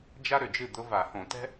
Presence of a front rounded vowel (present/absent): present